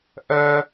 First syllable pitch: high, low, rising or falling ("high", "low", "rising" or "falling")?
high